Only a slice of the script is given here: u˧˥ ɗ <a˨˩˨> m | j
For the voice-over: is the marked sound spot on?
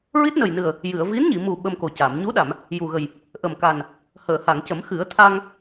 yes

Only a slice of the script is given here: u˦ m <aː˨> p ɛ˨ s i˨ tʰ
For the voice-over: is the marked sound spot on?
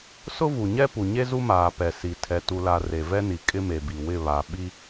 yes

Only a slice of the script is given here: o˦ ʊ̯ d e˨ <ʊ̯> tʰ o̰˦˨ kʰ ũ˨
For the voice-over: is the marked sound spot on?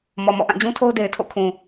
no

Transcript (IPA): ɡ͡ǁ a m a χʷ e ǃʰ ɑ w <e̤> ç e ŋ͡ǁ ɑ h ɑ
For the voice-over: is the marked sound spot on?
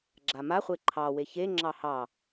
no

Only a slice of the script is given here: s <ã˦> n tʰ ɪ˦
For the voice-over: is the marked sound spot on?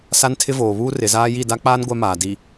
no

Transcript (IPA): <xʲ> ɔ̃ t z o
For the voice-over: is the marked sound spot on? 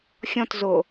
yes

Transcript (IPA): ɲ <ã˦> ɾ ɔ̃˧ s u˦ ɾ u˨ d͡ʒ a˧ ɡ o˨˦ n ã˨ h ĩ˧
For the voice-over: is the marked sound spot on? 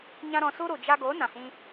yes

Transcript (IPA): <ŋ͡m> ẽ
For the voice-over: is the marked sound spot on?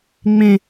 yes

